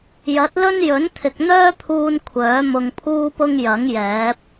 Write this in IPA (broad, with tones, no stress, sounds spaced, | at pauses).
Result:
j ɐ˨˥ t̚ l ɵ˥ n j ɵ˨˥ n t̪ʰ ɪ˨ k̚ n̪ œː˥ pʰ uː˧ n kʷʰ œː˨˥ m ʊ˧ ŋ pʰ uː˥ p ʊ˥ ŋ j ɐ˨˥ ŋ j ɛː˨˥ p̚